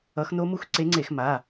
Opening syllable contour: rising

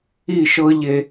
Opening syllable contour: falling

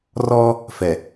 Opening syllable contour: high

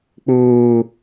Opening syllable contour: low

